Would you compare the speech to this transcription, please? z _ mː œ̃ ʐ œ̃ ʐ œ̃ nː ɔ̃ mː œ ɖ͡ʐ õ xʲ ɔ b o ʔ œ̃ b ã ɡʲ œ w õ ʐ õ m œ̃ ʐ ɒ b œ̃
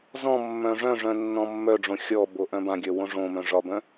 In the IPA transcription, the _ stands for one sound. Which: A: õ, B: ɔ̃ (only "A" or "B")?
B